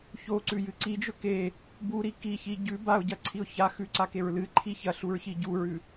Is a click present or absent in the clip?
present